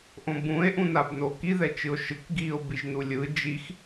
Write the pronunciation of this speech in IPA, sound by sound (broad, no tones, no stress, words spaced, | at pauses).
ʔõbũe̯ ʔũnabnoki ðɛt͡ʃɯo̯ʃɯk ɡio̯ biʒnulʲɯ d͡ʒix